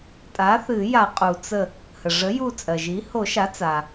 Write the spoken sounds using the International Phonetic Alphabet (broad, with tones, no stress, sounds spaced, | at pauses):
tʼ a˩˥ θ ɨ˨˩˦ j a˨˩˦ qʼ u˩ t͡s ə˧˩ | h ə˩ ʐ ə˩˥ j u˧˩ t͡sʼ ɜ˩ ʒ i˩˥ h o˨˩˦ ʃ a˩˥ t͡s a˩